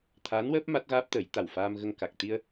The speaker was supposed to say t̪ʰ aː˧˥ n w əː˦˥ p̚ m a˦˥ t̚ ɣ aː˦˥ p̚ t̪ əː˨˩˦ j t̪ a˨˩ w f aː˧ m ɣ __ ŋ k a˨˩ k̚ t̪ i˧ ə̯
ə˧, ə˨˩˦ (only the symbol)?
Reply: ə˧